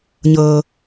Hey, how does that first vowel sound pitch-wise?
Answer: low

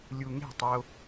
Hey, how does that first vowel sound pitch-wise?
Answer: high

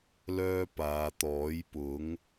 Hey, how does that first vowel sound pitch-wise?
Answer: high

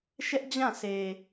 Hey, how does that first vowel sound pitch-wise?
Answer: high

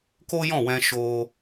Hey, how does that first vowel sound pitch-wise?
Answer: high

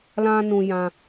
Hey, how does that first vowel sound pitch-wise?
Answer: high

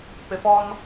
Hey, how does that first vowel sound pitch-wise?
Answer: low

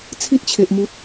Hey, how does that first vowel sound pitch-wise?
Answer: high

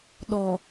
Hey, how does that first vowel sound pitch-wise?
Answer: low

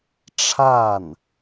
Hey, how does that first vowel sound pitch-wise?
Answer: falling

